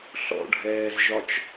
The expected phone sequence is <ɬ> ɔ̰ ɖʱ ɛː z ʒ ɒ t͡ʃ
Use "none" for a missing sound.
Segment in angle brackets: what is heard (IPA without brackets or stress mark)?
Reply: ɬ